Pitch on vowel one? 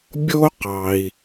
high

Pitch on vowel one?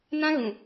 high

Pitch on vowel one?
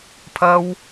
high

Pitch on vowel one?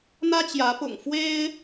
high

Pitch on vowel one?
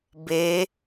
rising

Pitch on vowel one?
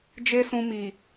high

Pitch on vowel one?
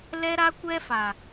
high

